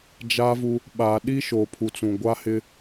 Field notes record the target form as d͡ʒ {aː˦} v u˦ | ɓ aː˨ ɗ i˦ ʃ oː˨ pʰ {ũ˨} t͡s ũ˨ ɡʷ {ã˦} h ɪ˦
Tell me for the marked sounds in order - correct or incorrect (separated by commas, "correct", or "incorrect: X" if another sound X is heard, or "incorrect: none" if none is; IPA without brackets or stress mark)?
correct, incorrect: u˨, incorrect: a˦